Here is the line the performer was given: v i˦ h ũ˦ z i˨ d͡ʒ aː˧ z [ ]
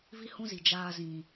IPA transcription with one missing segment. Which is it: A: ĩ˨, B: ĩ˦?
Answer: A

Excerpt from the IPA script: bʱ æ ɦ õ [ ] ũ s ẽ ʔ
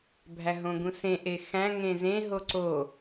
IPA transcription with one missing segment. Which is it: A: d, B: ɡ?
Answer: B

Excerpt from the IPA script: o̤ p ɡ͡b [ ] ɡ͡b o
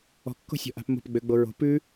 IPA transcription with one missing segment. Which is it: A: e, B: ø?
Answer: B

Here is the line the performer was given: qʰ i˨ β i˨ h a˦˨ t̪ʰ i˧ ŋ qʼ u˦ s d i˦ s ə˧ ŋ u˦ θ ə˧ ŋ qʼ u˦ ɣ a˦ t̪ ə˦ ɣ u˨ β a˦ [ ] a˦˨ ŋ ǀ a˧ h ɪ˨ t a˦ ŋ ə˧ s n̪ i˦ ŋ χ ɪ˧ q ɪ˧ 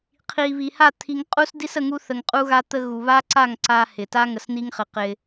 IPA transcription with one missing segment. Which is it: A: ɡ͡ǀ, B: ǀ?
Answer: B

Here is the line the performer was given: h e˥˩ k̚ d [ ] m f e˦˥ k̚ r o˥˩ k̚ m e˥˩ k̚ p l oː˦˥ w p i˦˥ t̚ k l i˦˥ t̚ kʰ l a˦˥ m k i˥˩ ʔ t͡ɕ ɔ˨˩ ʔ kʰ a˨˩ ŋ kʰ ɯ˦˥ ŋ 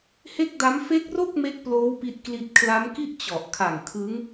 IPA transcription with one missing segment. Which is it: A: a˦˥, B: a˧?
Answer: A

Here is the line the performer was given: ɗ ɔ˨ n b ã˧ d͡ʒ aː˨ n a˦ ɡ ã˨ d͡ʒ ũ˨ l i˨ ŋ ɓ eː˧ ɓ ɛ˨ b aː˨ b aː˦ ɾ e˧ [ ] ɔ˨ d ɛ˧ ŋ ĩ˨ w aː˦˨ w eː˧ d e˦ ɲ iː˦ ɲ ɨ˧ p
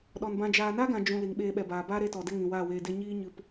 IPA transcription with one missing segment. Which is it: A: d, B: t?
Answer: B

